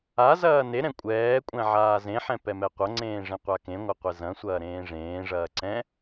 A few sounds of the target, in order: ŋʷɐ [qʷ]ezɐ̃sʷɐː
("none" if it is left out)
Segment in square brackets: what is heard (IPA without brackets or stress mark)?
qʷ